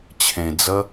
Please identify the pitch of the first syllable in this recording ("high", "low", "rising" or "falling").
low